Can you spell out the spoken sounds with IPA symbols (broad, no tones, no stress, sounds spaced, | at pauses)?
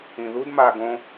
ĩ ð u d m a ɡ õ